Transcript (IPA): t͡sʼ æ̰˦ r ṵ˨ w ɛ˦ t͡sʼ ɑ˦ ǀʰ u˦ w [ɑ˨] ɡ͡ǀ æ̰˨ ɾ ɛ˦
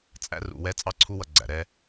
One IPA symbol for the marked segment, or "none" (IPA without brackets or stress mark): ʌ˨